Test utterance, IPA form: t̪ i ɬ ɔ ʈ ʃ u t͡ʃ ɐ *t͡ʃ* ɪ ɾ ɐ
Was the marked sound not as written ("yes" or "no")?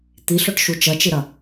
no